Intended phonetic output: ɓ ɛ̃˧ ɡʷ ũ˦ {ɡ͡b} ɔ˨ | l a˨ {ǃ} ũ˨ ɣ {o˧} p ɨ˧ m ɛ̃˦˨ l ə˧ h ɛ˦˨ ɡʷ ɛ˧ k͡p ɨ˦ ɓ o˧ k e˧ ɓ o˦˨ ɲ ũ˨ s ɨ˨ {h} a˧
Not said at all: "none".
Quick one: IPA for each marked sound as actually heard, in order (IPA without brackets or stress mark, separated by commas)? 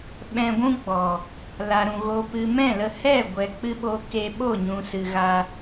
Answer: ɡ͡b, ɾ, o˧, ɣ